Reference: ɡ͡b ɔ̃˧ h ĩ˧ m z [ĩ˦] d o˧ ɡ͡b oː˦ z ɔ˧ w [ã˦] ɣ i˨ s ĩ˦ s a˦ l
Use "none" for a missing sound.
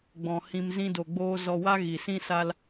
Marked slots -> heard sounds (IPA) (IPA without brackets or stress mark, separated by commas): ĩ˦, a˦